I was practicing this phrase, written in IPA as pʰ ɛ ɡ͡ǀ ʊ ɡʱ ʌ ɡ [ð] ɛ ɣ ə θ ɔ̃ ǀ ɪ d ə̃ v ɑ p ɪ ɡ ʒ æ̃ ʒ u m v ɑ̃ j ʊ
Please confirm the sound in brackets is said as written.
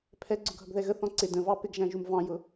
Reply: yes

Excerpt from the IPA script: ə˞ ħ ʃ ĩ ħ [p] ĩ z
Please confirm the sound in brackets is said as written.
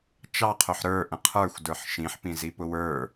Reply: yes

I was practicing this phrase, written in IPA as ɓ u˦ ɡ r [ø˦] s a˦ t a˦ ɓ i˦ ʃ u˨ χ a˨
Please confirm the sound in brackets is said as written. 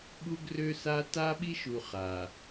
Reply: yes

